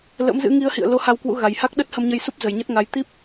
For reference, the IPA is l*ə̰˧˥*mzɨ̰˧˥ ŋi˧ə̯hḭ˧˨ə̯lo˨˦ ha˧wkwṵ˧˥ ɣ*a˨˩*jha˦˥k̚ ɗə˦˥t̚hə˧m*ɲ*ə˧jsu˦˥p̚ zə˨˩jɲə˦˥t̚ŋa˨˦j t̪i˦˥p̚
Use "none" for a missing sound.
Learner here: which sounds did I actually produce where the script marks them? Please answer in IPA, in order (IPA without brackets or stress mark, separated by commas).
ə̰˧˥, a˨˩, ɲ